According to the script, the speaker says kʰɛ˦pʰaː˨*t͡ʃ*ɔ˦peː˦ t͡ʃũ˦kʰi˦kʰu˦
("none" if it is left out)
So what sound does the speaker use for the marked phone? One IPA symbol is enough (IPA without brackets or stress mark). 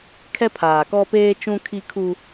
k